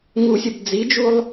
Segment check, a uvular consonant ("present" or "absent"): absent